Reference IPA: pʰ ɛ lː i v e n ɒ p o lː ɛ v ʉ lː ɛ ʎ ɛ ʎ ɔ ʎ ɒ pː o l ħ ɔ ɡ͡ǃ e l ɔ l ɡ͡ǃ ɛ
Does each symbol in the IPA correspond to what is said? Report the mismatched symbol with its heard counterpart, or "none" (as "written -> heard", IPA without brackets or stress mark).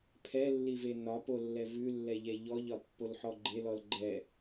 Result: none